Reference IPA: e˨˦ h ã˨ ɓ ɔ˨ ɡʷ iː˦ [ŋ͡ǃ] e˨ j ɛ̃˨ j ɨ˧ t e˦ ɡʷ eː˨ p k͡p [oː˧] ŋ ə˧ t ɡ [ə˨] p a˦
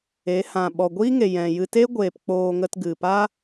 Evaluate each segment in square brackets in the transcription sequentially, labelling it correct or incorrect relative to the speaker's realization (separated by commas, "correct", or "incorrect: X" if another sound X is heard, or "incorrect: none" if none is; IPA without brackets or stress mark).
incorrect: ŋ, correct, incorrect: ɨ˨